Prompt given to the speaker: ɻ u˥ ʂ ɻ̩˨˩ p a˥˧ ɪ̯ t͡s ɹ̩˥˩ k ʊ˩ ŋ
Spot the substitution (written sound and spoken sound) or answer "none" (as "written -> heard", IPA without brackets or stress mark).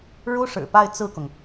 none